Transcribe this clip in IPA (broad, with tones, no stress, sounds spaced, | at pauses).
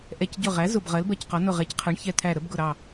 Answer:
ʔ ɛ˧˩ c ɟ ʊ˧˩ ʁ æ˩˥ z ʊ˧˩ b ʁ ɜ˩˥ l b ɜ˧˩ c q ɒ˩˥ n ʊ˧˩ ʁ ɛ˩˥ c qʰ ɜ˩˥ ɳ ç ɛ˧˩ t̪ʰ æ˧˩ ɾ ə˩˥ b ɡ ʊ˧˩ ɾ ɑ˧˩